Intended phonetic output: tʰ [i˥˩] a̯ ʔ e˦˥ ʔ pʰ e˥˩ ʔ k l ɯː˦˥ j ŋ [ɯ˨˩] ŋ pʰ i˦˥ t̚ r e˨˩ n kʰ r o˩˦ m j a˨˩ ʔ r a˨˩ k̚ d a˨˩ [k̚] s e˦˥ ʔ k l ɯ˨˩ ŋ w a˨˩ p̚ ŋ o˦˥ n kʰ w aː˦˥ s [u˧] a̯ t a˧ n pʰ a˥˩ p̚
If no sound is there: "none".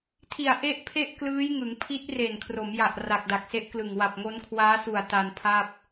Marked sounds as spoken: i˨˩, ɯ˩˦, k̚, u˨˩

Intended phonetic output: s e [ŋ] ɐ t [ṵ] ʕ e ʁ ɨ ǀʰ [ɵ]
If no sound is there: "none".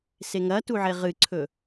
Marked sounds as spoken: ŋ, u, ɵ

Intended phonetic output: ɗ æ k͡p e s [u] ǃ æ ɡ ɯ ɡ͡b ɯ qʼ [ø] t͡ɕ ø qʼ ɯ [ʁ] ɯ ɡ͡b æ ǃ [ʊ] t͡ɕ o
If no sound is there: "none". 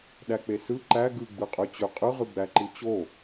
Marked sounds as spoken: ɯ, ø, ʁ, ɯ

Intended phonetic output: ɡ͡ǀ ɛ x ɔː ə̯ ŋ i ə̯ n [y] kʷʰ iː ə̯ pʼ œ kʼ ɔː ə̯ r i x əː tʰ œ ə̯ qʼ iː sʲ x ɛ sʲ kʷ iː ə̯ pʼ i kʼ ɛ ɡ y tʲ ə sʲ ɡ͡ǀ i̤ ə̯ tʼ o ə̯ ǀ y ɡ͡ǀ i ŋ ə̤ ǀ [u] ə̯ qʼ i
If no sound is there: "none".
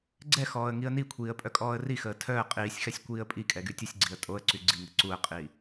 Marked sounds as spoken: i, u

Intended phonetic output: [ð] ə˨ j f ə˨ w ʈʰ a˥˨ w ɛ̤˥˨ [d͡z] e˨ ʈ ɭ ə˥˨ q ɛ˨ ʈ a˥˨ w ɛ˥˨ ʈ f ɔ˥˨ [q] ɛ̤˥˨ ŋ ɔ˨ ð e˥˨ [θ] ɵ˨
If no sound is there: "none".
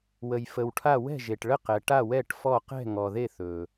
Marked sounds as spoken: w, ʒ, q, θ

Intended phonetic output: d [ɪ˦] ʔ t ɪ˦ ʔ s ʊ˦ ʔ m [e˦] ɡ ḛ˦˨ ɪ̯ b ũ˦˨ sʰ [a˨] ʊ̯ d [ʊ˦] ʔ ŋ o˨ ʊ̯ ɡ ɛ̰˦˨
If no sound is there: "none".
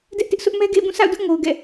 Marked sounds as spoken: ɛ˦, ɛ˦, a̰˦˨, ʊ˦

